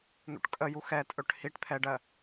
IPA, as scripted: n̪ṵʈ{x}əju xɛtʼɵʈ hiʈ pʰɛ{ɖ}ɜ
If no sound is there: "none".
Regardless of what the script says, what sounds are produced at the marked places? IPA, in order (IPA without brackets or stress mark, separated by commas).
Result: kʼ, ɖ